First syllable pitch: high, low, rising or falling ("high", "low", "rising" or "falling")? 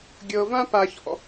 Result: low